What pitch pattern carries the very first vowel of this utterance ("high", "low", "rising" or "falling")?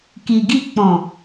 low